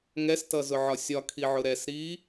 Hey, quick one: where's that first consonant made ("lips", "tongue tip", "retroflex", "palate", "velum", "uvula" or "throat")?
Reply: velum